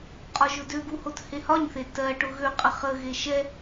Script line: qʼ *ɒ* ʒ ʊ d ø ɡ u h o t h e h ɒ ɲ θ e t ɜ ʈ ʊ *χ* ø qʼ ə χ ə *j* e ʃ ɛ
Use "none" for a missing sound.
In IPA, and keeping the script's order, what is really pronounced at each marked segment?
ɒ, ɣ, ɣ

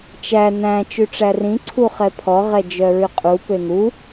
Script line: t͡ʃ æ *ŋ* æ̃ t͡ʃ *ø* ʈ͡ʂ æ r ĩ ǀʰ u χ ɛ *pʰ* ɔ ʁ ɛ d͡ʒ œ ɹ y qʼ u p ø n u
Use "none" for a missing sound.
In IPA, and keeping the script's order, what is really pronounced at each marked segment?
n, ʉ, pʰ

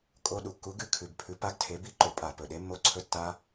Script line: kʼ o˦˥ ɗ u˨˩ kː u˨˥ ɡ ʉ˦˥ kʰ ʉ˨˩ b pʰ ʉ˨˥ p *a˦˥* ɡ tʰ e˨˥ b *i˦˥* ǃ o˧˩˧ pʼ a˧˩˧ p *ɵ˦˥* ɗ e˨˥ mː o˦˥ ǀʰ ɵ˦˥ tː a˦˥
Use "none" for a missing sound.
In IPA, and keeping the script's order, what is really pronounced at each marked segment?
a˦˥, i˦˥, ɵ˨˩

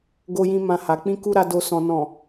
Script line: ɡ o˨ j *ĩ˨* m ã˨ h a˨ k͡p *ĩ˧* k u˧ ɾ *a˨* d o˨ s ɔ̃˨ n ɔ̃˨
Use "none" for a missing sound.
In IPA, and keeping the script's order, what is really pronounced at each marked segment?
ĩ˨, ĩ˧, a˨

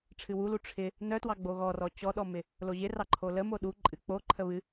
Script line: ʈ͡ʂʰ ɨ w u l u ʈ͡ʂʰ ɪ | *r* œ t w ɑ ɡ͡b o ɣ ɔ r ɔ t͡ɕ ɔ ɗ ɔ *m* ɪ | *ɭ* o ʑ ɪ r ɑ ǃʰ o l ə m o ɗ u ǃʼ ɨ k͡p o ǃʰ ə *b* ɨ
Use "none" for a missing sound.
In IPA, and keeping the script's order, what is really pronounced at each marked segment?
n, m, l, β

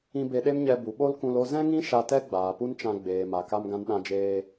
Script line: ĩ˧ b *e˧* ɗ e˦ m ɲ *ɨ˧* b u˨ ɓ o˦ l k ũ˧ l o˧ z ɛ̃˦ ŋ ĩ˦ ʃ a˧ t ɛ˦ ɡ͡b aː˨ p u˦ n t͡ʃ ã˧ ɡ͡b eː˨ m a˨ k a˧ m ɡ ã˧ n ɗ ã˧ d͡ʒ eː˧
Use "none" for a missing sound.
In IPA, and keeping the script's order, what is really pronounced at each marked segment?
e˧, ɛ˧

